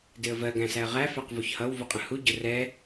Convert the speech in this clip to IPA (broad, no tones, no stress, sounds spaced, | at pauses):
d ɪ ə̯ v ɜ ɡ æ̃ s æ ə̯ ʁ æ f æ q v u ç h ʌ w v u qʼ ə̃ h u ɟ ʊ r ɛ